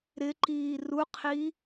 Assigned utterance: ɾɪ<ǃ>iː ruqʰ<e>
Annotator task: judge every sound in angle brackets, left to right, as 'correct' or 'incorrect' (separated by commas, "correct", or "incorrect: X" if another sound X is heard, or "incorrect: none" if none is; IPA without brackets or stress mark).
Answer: correct, incorrect: i